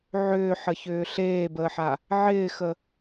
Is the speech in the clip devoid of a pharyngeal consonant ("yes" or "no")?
no